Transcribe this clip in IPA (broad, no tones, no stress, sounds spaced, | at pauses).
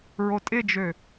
ɹ o tʼ ɪ d͡ʒ ø